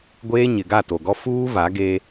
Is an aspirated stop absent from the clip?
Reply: yes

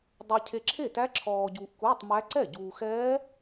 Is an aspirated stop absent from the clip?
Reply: no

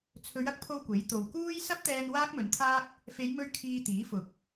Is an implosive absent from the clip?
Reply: yes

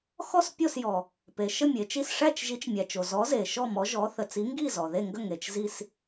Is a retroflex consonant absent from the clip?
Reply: no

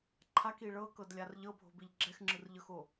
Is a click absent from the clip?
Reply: no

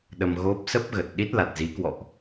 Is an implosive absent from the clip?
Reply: no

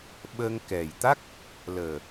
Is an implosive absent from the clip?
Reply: no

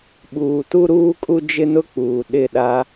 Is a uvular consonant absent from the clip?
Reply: yes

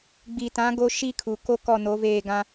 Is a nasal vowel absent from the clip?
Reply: no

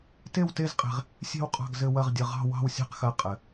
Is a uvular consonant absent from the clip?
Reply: no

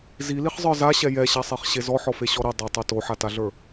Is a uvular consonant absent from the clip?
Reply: no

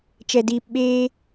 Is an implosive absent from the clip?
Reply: no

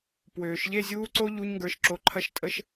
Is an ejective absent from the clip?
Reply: no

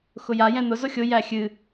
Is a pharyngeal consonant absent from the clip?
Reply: yes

